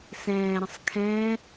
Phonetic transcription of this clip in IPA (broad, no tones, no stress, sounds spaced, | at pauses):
s ɛ̃ː ɾ ə̃ sˤ kʰ ɛ̃